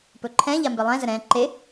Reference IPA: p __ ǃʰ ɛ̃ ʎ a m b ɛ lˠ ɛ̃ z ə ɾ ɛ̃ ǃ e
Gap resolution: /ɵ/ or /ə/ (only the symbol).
ɵ